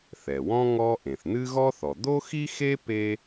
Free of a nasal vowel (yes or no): no